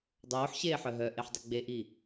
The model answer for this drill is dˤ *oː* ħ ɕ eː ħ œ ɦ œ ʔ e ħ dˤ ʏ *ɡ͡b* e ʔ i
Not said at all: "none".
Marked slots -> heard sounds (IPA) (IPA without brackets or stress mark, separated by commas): oː, ɡ͡b